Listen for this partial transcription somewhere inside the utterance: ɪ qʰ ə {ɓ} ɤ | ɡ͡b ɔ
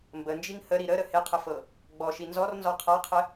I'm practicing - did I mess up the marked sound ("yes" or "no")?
yes